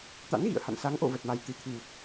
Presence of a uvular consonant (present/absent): absent